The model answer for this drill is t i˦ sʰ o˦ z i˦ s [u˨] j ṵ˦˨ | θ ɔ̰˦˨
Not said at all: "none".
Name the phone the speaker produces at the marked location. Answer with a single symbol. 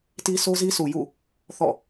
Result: u˨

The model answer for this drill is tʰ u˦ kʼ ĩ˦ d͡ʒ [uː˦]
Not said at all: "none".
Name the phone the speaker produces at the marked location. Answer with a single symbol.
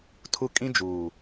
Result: uː˨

